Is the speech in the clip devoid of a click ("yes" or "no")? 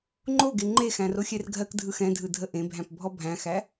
no